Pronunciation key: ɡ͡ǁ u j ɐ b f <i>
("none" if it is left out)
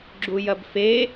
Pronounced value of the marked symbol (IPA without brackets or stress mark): e